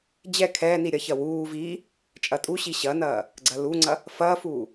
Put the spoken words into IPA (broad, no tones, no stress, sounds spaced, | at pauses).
d͡ʑ ɛ kʰ ɛː n i ɾʲ ɐ ç ɐ w uː v i | t͡ʃʼ ɐ tʼ u ɕ i ɕ ɐ n ɐː | ɡ͡ǀ ɐ l u ŋ͡ǀ ɐ | f ɐː f uː